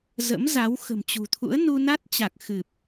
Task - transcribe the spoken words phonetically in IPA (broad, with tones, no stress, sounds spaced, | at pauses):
z ə̰˧˥ m z a˨˦ w x ə̤˨˩ m t͡ɕ ṳ˨˩ t̪ʰ ṵ˧˥ ə̯ n u˧ n a˦˥ t̚ t͡ɕ a˨˩ k̚ x ɨ˨˩ p̚